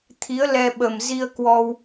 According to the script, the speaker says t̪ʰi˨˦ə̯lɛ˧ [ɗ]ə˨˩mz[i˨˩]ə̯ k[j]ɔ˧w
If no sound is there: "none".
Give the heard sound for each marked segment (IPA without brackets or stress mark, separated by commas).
ɓ, i˧, w